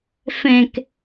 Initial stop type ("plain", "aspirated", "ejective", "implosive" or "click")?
plain